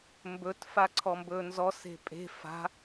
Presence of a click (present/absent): present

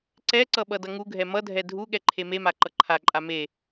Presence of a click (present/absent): present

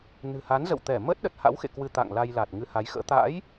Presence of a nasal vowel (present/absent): absent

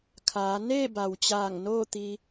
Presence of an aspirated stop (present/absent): present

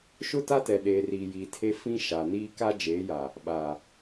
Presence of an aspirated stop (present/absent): present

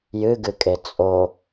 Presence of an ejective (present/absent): present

